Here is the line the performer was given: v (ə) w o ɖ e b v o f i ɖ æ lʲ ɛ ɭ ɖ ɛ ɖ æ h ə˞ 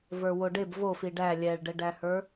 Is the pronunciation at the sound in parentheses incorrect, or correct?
incorrect